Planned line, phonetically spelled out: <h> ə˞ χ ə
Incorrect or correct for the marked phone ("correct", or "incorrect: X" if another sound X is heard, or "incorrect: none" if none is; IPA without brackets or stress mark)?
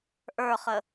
incorrect: ʔ